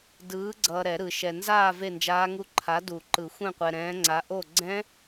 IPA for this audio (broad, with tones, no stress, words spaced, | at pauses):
dɯː˨˥ɡ͡ǀʌː˨ ɾɛ˨˩˦ɾɯ˨˩˦ʃɛ˨ nzaː˥˨ ve˥˨nd͡ʒaː˦˥ŋu˦˥ ǃʰa˨˥ du˨˩˦ǃɯ˨˩˦ xʷɛ̃˥˨qʷɛ˨ɾɛ̃ː˨˥ŋ͡ǀa˨˥ ʔo˥˨ ɡ͡ǀɛ̃˦˥